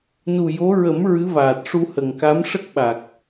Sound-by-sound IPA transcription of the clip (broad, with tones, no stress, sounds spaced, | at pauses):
n u˨˩ j o˧˥ ɹ ə˨˩˦ m ɹ ɨ˧˥ v aː˨˩ t̚ ʂ u˧ h ə˨˩ ŋ k a˧˥ m ʂ ə˦˥ k̚ ɓ a˨˩ k̚